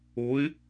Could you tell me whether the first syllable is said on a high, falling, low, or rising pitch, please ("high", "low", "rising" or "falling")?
rising